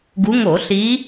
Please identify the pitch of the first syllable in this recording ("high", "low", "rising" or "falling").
rising